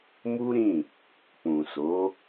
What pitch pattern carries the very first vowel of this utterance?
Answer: high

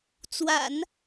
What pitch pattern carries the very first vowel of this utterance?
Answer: low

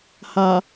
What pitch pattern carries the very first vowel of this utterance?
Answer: low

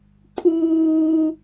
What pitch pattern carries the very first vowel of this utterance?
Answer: high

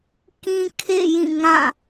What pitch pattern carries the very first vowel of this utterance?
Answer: high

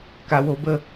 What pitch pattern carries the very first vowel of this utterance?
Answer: low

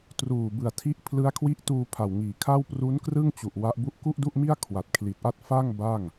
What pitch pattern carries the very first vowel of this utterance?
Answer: low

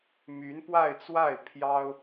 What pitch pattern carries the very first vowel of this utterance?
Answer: rising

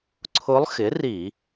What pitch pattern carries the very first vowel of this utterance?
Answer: rising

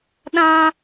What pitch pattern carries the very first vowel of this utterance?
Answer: high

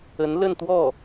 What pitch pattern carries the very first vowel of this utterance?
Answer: rising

